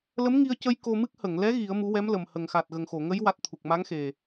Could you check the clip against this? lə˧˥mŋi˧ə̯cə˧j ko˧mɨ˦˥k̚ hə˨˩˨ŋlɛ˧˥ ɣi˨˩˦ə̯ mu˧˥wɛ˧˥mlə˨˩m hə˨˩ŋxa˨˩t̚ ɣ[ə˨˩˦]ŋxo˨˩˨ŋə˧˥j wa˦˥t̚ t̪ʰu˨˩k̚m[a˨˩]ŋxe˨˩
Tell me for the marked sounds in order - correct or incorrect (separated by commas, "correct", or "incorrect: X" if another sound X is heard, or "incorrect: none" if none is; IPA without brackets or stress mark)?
incorrect: ə˨˩, incorrect: a˧˥